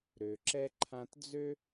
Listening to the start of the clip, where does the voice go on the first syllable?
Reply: low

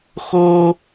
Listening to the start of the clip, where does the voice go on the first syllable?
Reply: high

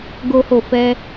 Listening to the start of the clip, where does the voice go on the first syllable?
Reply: high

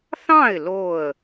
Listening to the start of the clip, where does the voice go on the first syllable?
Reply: falling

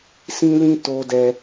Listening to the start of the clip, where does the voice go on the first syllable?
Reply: high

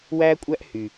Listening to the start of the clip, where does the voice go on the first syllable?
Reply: high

